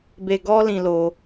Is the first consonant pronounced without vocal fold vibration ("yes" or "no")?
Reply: no